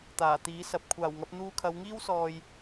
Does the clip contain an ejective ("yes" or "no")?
no